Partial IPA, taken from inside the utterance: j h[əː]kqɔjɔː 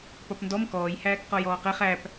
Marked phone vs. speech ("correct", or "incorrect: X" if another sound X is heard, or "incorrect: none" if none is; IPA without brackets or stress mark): incorrect: æː